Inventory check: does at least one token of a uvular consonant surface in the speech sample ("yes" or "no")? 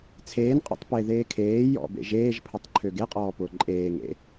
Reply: yes